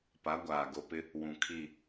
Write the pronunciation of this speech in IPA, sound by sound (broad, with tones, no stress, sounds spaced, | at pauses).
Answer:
p a˨˦ ɡʷ aː˨ ɡ o˨ p ɪ˦ | w ũ˨ kʰ i˦˨